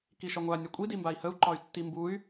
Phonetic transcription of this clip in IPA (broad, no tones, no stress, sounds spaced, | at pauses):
k i ʃ ɒ ŋʷ a nʲ ɒ kʷʼ i d i m b a i̯ h ə u̯ ǃ ɒ y̯ tː i m b u y̯